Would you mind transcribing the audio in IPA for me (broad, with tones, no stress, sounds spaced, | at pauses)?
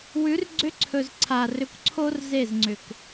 w ʉ˨˦ r ɡ͡ǀ ʏ˦ ǀʰ ɵ˨ z ǀʰ a˨ r ʏ˨ kʷ ǀʰ o˧ r z e˦˨ z ŋ͡ǀ ʏ˨ k